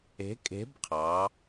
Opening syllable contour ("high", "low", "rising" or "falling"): rising